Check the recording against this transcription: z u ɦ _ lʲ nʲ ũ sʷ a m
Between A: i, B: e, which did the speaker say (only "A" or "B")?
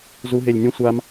B